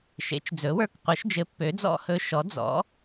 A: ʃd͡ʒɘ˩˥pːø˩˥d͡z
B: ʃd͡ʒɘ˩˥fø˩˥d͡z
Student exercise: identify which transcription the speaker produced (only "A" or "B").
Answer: A